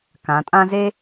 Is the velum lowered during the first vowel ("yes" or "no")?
yes